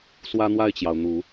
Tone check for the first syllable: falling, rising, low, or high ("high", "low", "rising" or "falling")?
high